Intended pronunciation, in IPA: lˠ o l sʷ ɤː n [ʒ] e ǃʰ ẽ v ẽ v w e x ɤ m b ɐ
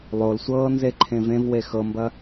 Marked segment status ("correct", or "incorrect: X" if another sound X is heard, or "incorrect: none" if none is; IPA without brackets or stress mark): incorrect: z